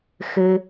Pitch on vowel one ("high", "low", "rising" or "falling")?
low